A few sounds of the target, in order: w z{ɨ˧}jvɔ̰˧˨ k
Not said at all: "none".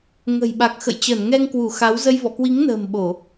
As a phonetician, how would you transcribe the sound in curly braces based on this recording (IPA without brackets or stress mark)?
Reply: ə˧